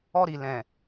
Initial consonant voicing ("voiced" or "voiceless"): voiced